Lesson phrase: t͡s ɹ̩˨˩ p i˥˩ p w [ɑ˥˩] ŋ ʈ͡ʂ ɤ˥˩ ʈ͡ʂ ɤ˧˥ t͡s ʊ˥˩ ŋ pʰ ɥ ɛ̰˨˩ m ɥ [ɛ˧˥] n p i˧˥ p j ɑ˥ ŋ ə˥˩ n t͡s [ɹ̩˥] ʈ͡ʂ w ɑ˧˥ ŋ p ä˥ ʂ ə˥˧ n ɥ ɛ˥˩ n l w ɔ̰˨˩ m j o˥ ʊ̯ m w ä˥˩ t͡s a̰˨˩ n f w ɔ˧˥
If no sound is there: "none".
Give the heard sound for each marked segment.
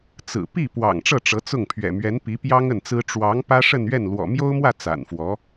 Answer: ɑ̰˨˩, ɛ˧˥, ɹ̩˥

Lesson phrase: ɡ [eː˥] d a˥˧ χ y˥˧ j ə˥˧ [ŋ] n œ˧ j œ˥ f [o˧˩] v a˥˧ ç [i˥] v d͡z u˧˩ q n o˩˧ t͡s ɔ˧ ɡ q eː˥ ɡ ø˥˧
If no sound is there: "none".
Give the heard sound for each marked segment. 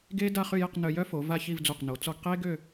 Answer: eː˥, q, o˩˧, i˥˧

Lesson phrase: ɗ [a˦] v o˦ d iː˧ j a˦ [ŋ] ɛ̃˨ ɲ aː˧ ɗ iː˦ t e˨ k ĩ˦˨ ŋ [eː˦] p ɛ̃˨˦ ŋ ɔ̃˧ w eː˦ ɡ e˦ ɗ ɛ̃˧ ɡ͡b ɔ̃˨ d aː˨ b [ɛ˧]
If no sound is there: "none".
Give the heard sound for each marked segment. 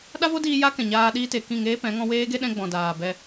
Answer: a˦, k, eː˦, ɛ˧

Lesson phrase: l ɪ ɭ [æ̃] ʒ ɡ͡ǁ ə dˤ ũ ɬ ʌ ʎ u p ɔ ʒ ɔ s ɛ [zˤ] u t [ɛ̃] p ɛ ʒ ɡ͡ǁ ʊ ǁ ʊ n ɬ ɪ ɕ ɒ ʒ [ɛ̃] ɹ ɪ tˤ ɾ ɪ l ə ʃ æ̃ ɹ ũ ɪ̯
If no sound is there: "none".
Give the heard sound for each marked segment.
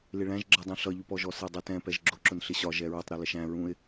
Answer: æ̃, dˤ, ɛ̃, ɛ

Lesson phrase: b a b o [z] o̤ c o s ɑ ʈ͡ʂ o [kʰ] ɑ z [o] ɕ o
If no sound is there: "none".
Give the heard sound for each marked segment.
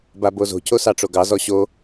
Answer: z, ɡ, ɔ

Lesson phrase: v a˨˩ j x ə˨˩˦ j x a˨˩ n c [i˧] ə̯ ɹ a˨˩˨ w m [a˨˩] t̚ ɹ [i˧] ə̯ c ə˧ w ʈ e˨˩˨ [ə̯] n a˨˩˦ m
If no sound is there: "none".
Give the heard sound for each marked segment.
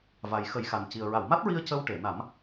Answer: i˨˩, a˦˥, i˧, none

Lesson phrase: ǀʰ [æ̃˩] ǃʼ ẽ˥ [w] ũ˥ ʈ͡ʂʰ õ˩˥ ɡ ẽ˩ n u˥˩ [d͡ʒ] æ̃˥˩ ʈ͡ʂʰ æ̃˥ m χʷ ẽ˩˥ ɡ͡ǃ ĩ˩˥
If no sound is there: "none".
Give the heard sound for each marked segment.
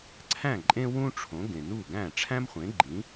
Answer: æ̃˥˩, w, ɡ

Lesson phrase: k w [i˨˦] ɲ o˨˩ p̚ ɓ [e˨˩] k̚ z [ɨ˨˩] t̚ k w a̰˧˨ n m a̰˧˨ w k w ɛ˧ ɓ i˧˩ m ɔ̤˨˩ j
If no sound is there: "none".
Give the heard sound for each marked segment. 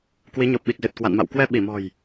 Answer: i˨˦, i˨˩, ɨ˨˩

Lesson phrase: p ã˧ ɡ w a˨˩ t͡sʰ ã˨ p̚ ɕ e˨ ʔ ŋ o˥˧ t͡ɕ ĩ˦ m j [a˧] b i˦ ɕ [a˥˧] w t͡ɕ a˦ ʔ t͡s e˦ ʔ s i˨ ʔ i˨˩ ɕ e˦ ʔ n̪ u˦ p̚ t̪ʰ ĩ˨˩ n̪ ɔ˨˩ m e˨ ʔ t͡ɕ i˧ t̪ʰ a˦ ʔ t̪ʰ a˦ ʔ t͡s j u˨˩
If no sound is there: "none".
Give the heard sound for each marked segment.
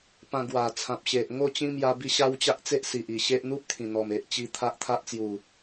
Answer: a˧, a˦

